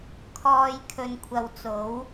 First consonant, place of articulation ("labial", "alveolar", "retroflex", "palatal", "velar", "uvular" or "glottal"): velar